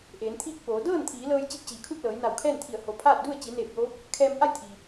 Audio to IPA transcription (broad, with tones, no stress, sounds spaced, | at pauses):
ʔ eː˩˧ n t̪ʰ iː˥˨ k̚ p oː˩˧ d ɤː˥˨ n t̪ʰ iː˩˧ l ɤː˧ j t͡ɕ i˧˥ p̚ t͡ɕ iː˩˧ kʰ u˥˨ t̚ l ɤː˩˧ j n a˧˩ w kʰ ɛː˥˨ n t̪ʰ i˧˩ ə̯ h o˩ pʰ aː˥˨ t̚ d u˥˨ ə̯ t͡ɕ i˩˧ n eː˧˩ p̚ j oː˧˥ p̚ | kʰ ɛː˧ m ʔ a˥˨ j t̪ʰ iː˩